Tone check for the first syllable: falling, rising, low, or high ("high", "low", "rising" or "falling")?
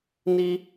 high